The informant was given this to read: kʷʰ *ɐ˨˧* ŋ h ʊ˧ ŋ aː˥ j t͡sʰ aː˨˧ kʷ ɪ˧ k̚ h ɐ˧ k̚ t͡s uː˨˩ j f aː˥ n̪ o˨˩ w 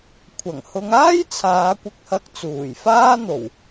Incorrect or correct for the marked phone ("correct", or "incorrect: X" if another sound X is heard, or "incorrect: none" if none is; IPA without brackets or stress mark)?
incorrect: ɐ˨˩